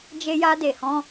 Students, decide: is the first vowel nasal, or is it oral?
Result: oral